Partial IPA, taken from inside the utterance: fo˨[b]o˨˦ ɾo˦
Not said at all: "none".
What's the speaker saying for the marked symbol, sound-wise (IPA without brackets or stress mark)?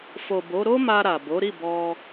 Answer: b